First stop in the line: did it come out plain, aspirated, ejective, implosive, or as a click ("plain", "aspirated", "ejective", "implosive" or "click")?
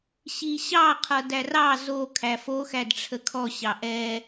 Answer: aspirated